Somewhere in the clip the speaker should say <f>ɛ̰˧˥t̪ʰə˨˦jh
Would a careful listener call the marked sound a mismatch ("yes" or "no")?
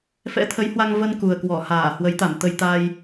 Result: no